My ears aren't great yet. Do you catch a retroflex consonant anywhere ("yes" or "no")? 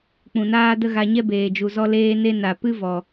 no